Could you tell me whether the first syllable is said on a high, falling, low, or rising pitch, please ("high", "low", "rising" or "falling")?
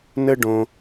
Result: high